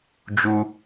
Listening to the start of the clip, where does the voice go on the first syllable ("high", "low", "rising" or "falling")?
high